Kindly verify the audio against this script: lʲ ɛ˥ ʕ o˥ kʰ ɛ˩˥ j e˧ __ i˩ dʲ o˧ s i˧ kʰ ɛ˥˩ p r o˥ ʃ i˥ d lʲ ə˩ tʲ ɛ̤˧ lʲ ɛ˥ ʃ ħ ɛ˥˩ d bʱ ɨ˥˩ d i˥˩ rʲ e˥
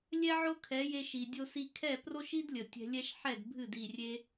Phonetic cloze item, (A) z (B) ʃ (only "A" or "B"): B